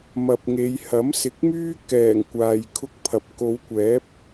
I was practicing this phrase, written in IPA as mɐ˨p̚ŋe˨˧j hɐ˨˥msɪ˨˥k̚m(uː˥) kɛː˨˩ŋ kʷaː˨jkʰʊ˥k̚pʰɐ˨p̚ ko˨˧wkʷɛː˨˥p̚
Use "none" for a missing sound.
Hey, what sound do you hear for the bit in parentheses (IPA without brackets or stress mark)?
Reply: yː˥